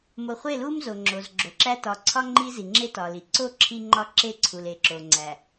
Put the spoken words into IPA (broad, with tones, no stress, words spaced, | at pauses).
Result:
mo˨χʷe˦˨lu˦m zo˨ŋ͡ǁo˨zɡ͡ǁo˨ǁæ˦ tɒ˨ǀʰɒ˦ ŋ͡ǃi˦zi˨ŋ͡ǁe˦ tɒ˨li˨ ǀo˦ ǁʰi˦ŋ͡ǃɒ˦ǁe˦ǀʰu˨l e˨ ǁo˨ŋ͡ǀæ˨